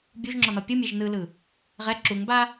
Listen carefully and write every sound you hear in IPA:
bʲ u ʒ ŋ͡ǁ ɔ n ɔ pʲ ɯ mʲ e ʒ n ɯ l ɯ | ʁ ɛ ǁ u ŋ b a

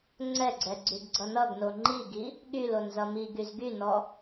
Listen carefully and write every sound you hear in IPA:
ŋ͡ǀ ɛ ɡ͡ǀ ɛ ɡ͡ǀ y ɡ ɡ͡ǀ ʌ n ʌ ɡ n o ŋ͡ǃ i ɡ i | ɠ y l o n z ʌ m i ɡ y z ɡ y n ɔ

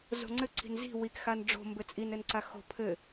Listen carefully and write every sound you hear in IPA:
z o̤ ŋ͡ǀ ɘ ǀ i̤ n z i̤ w i k x a n ɖ͡ʐ o̤ m b ɘ t͡sʼ i n ɘ n ǀ a x o̤ pʰ ɘ

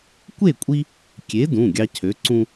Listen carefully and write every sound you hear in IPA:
kʷ e˥˨ kʷʼ i˦ | kʲ e˨˥ d ũ˩˧˩ ɡʲ ɑ˦ cʰ ø˨˥ ǀ ũ˦

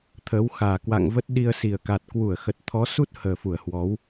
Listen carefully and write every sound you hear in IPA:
t̪ʰ əː˨˦ w x aː˨˩ k w a̰˧˨ ŋ v ə˦˥ t̚ ɗ i˧ ə̯ s i˨˩ ə̯ k a˨˩ t̚ k w u˧˩ ə̯ x ə˨˩ t̚ t̪ʰ ɔ˨˦ s u˦˥ t̚ h əː˨˩ f u˧˩ ə̯ h w ɔ˨˦ w

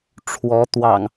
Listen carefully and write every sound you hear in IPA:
ʈ͡ʂʰ w ɔ˨˦ t̪ w ɑ̰˨˩ ŋ

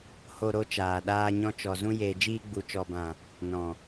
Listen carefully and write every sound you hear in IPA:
h o˧ ɾ o˧ t͡ʃ aː˨ ɗ aː˧ ɲ ɔ̃˧ t͡ʃ ɔ˨ z ũ˧ j eː˨ d͡ʒ iː˧ ɡ͡b u˨ t͡ʃ ɔ˨ b ã˨ | n ɔ̃˨

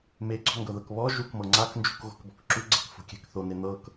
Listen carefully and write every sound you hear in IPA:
m e ɡ͡ǀ ɔ̤ ŋ ɡ ɤ ð ɤ k β ɔ ʒ u k m ɤ ŋ͡ǀ a k n d͡ʒ ṳ k ɣ o̤ k b ɔ̤ k ǁ u ɡ͡ǀ ɛ̤ k f o̤ kʲ ɛ̤ k θ o n e n̪ ɤ k

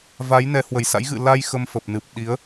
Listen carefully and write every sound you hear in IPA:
v a˨˦ j n ɛ˨˦ h w ə˨˩ j s a̰˧˥ j ɣ ɨ̰˧˨ l a˧ j x ə˧ m f ə˨˩ p̚ n ɨ˨˩ p̚ ɗ i˨˦ ə̯

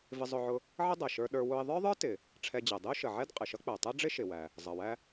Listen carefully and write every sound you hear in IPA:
v ɪ˧ zˤ ʊ˧ ʕ ʊ˧ | ʕ ə˥ dˤ æ˩ ʃ ə˞˧ ɗ ə˞˧ w ʊ˧ ɪ̯ ðˤ ə˞˥ ðˤ ə˞˥ t ɪ˩ | ʈ͡ʂʰ ɛ˧ d͡ʑ ɛ˩ dˤ ɪ˥ ʊ̯ ʃ ə˩ ʕ ɛ˥ d qʼ ɪ˩ ʃ ʌ˥ k͡p æ˩ tˤ ɛ˥ ɖ͡ʐ ɪ˥ ʃ ɪ˩ w æ˩ | zˤ ʌ˩ w æ˧

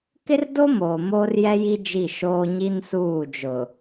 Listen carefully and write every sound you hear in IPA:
k ɪ˦ r d o˦ m oː˨ m oː˦ r j ɛ˦ j i˦ d͡ʒ i˦˨ ʃ oː˦ ɲ i˦ n s uː˦˨ d͡ʒ ʊ˨

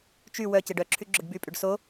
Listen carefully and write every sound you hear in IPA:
t͡ʃ y w œ c e ɖ œ ǁʰ y ɡ͡ǁ ʊ ɖ b y pʼ y ɖ s o

